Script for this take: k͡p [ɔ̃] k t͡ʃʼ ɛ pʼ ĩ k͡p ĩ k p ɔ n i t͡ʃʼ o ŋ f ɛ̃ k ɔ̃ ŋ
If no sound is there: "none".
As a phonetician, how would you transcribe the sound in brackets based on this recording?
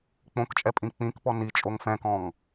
õ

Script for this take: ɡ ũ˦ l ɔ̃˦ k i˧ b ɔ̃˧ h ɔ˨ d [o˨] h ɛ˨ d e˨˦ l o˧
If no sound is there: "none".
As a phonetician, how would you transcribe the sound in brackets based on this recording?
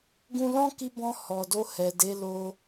o˧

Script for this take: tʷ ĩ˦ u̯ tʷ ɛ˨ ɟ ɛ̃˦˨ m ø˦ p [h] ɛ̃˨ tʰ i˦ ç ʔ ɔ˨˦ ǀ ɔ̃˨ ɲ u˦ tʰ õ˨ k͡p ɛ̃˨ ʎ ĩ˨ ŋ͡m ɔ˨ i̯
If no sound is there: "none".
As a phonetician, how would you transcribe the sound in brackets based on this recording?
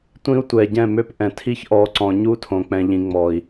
ʔ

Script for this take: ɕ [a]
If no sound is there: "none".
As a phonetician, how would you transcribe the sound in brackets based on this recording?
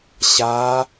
a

